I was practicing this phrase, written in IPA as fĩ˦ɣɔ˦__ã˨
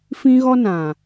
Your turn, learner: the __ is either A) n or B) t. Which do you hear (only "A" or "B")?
A